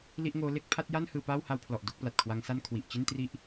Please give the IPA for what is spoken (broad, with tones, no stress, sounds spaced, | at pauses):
l i˥˩ ʔ ŋ oː˦˥ l e˦˥ k̚ pʰ a˦˥ t̚ j a˥˩ n h ɯː˧ p aː˥˩ w h a˧ w pʰ l ɔ˨˩ ʔ d o˥˩ k̚ p l a˨˩ t̚ kʰ w a˦˥ ŋ s a˥˩ n kʰ w i˨˩ ʔ t͡ɕ i˥˩ n t r i˥˩ ʔ